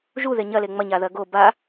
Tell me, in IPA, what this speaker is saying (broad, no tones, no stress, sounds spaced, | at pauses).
ʒ u ð e ɲ ɐ l e ŋ͡m ɐ ɲ a ð ɐ ɡ o b a